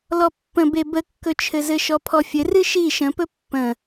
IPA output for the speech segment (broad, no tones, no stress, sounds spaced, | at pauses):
l ɔ pː ə̃ b e b ə kː ɵ t͡ʃʰ ɘ z ɘ ʃ ɔ pʰ ɔ fʲ ɘ r ɨ ʃ i ʃ ə̃ p ɵ pː ə̃